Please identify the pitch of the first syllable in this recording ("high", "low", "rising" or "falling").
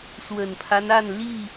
low